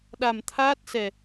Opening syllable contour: low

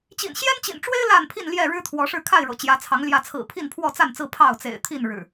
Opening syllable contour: low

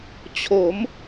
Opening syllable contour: rising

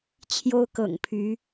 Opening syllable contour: high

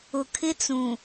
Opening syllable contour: low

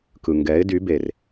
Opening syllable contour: low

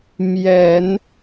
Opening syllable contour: low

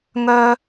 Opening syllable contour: high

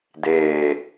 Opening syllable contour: low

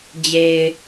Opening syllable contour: low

